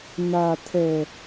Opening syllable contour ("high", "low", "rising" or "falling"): low